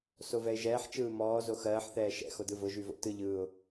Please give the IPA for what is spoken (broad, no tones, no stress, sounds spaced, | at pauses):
s o v ɛ ɪ̯ ʒ ɛː ħ t͡ʃ ɯː m ɔː z o x ɜː ħ θ ɛː ʃ ɛ̰ x o d ɯ v ʊ ʒ y v o̰ t ɯ ʎ ɯː ʊ̯